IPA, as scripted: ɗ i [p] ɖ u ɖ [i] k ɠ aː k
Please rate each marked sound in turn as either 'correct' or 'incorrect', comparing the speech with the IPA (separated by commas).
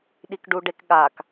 incorrect, incorrect